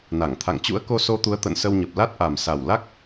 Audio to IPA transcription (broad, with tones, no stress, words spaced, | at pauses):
na˧˩ŋt̪ʰa̰˧˨ŋ t͡ɕṵ˧˥ə̯ko˧so˧t̪u˨˦ə̯ t̪ə̰˧˨nsə˧wɲə˨˩p̚ la˦˥t̚ʔa˨˩m sa˨˩wla˦˥k̚